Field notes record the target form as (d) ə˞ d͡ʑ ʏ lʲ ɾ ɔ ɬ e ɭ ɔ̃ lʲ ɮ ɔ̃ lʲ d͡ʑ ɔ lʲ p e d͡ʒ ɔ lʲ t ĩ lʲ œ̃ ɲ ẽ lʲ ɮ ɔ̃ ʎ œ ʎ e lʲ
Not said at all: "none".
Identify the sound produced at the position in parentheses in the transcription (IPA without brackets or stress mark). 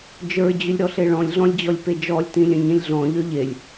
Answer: d͡ʒ